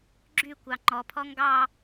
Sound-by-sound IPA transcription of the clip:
ɡ͡ǁ y kʷ ɑ ŋ͡ǃ ɔ pʰ ɔ ŋ ɡ ɑ

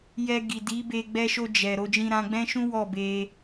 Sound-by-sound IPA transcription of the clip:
j ɛ˧ ɡ i˨ d i˨˦ b e˧ ɡ͡b ɛ˧ ʃ o˧ d͡ʒ ɛ˨ ɾ o˧ d͡ʒ ĩ˧ ɾ ã˧ ɡ͡b ɛ̃˦ ʃ ũ˦ w ɔ˦˨ b e˧

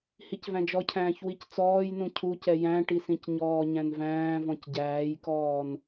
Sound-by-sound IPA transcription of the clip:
h i c v æ̃ d͡ʒ ɔ cʰ æ̃ː ç w i c t͡s ɔː j n ũ cʰ u c ɛ j æ̃ ʈ i s ĩ c ɲ ɔː ɲ æ̃ n v æ̃ː v ɔ̃ c ɟ æː j k ɔː n

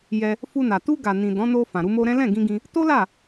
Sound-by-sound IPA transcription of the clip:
j ɛ˧ | f u˧ n a˨ t u˧ ɡ a˨ n ĩ˨ d ɔ̃˨˦ n o˧ f ã˨ ɾ u˧ m o˧ ɾ ɛ̃˦ l ɛ̃˦˨ ɡ ĩ˧ ɡ ĩ˧ | t o˦ l a˦˨

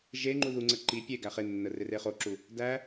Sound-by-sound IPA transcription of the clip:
ʒ e ŋ͡ǃ u ð u ŋ͡ǀ ə ǃ i pʲ e ɡ æ χ e nː ə r ɪ r e χ o ǁ u | d æ

